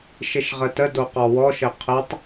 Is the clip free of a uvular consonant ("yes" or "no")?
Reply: no